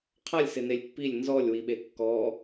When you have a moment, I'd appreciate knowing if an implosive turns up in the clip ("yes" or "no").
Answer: yes